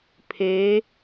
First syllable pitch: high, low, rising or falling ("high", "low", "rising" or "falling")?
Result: rising